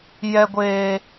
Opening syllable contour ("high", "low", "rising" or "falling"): high